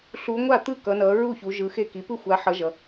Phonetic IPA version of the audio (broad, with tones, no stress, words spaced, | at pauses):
ɬu˨˦ŋʷa˥˩ t̪ɯ˥˩kʌ˨˦nʌ˨˦ ɹu˥˩çu˨˦ ʒɯ˨˦xe˥˩ki˨˦ pɯ˥˩xʷa˨˦ħʌ˨˦ ʒʌ˨˦